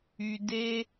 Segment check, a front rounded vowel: present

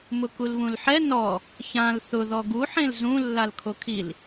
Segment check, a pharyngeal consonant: present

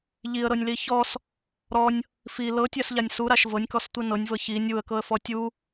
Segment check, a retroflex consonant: absent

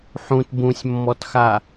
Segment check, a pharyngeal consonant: present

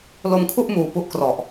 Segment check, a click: absent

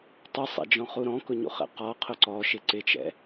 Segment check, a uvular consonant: present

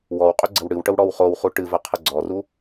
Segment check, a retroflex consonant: present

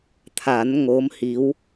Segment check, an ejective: absent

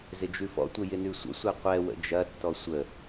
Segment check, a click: absent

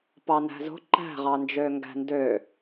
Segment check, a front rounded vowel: present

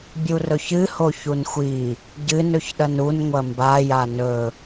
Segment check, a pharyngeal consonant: absent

